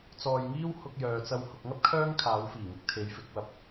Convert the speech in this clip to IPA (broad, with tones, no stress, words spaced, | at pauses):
t͡sɔː˧jŋiː˥w hʊ˧k̚jœː˨t͡sɐ˧w hʊ˨k̚ŋɐ˥p̚ kʰœː˥ŋ kʰaː˨˧wfiː˨˩ŋɪ˨˥k̚ t̪ʰe˨˧jfɪ˨˥k̚wɐ˧p̚